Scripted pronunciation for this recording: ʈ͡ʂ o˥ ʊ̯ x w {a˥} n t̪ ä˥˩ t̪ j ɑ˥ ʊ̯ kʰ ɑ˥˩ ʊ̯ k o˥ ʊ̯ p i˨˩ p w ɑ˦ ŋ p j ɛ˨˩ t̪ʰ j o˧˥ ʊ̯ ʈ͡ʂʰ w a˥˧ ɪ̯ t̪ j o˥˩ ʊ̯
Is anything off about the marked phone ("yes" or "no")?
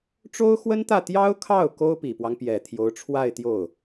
yes